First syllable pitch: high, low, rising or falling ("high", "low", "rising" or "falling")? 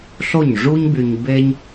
falling